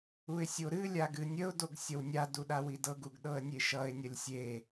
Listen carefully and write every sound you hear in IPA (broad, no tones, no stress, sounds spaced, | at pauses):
u ɪ̯ sʲ o ɾ ɨ lʲ a ɡ ɨ nʲ ə ʊ̯ d o ɡ sʲ ʌ w nʲ a d u ɗ a w i d ɤ ɡ u ɡ ɗ ɤ ə̯ nʲ e ʃ ʌ ɪ̯ nʲ ʌ lʲ sʲ e